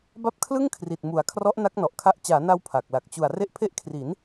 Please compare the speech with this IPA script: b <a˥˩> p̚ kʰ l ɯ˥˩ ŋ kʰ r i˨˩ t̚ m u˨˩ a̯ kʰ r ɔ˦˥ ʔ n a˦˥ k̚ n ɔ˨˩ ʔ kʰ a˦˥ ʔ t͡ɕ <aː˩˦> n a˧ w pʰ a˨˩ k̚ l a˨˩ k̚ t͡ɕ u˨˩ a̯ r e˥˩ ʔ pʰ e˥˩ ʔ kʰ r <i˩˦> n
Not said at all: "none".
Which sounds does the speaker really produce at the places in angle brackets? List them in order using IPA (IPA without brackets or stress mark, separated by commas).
a˥˩, aː˩˦, i˩˦